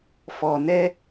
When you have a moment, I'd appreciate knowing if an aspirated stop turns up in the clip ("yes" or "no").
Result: no